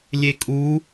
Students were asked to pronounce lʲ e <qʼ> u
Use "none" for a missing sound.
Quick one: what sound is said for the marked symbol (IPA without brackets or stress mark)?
kʼ